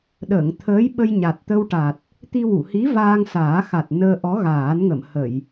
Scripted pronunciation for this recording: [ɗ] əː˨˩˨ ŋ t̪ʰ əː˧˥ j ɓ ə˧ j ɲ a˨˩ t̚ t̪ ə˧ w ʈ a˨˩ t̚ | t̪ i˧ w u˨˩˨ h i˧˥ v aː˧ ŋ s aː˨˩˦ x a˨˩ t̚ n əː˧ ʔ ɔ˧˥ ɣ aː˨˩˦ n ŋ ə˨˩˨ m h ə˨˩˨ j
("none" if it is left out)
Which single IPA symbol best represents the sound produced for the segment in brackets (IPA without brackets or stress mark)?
ɗ